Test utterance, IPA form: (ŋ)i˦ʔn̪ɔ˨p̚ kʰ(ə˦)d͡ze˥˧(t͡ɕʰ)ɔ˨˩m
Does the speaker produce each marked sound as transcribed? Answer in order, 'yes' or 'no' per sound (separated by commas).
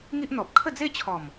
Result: yes, no, yes